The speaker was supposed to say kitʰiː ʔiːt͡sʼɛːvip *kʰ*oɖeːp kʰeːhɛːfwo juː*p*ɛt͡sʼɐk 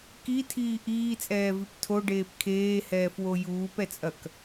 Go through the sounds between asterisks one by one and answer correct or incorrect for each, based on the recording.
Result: incorrect: tʰ, correct

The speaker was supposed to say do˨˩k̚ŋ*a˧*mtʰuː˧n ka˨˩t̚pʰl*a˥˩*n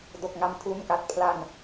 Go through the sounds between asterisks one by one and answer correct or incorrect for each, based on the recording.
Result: correct, incorrect: a˧

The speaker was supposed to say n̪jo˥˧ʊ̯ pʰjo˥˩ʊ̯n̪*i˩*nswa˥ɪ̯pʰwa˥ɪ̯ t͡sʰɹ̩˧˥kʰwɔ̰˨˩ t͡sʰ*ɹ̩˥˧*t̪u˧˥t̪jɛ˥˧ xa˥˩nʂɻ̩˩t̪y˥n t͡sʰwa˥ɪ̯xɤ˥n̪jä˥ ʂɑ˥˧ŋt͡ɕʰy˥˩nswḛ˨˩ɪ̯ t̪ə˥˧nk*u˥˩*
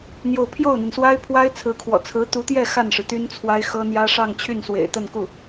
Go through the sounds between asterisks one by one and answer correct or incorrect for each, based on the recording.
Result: correct, incorrect: ɹ̩˧˥, correct

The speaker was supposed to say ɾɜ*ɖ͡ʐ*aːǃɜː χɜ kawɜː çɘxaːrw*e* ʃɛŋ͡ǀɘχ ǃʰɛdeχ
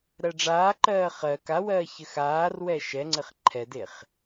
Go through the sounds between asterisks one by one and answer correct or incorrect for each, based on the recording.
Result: correct, incorrect: ɛ

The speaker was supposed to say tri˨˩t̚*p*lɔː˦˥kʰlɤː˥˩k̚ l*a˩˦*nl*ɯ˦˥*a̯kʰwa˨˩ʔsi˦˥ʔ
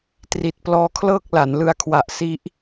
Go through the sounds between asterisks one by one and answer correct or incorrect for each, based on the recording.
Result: correct, correct, incorrect: ɯ˧

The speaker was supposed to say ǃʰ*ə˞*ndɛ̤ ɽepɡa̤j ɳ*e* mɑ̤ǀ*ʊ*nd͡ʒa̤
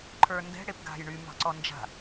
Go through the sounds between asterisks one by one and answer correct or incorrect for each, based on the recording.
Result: correct, incorrect: y, incorrect: ɔ

